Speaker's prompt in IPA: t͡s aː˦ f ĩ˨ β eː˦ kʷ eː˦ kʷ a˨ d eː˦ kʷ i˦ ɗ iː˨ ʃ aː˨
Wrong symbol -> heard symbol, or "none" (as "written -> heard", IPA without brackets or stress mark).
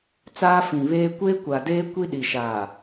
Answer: iː˨ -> i˨